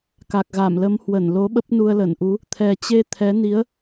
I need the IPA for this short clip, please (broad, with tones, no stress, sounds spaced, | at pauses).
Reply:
k a˨˩ k̚ ɣ a˧˩ m l ə˨˦ m h w ə˧˩ n l o˨˦ ɓ ə˦˥ p̚ n u˧ ə̯ l ə˧˩ n ʔ u˨˦ | t̪ʰ ɛ˨˩ t͡ɕ e˧ t̪ʰ ɛ˨˦ n i˨˦ ə̯